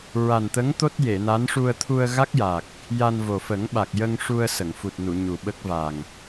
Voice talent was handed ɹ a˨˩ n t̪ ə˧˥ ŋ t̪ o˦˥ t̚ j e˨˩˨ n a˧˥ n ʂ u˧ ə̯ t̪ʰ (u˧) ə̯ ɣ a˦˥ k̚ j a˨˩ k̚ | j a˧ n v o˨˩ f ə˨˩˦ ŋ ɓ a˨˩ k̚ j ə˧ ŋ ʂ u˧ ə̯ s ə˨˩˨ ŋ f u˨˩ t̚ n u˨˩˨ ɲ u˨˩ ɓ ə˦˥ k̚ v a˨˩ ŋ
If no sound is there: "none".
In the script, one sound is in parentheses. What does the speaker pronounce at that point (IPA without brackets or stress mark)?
u˧